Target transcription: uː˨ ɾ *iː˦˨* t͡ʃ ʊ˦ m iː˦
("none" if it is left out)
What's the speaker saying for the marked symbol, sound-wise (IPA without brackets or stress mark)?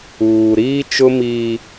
iː˦